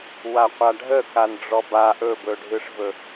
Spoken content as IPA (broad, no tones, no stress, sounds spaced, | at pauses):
w a qʷ a ɖʱ ə k a n ɖ͡ʐ ɔ b a ʔ ɵ b ɵ ɖʱ ɯ ʂ v ɵ